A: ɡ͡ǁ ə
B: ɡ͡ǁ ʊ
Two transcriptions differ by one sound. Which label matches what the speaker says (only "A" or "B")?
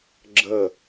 A